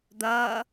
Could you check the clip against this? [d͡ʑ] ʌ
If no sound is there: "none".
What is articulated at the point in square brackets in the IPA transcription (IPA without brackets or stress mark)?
d̪